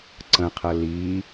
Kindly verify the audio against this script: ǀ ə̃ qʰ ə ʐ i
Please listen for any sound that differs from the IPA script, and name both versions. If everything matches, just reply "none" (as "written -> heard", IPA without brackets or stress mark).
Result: ʐ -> l